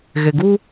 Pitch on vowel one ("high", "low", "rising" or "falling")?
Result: low